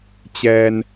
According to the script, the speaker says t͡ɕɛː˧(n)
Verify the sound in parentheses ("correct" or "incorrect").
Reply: correct